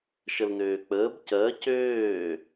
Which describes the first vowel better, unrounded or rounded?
unrounded